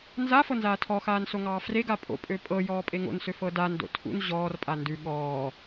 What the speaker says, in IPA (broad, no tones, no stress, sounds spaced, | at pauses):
n z a f ɤ n z aː tʰ ɔ x aː n s o ŋ ɑː f r e ɡ a pʼ o̰ pʼ ø pʼ ɤ j ɔː pʼ e ŋ o̰ n s ø f ɤ d a n d o̰ tʰ ṵ n ʑ ɔː r pʼ a n d ʉ ɠ ɔː